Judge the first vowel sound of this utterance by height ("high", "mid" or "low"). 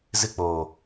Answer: high